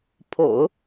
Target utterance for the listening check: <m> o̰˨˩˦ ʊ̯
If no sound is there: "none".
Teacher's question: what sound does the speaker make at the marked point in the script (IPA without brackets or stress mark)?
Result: pʰ